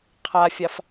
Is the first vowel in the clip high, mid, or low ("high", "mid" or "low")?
low